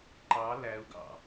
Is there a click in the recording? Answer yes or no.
yes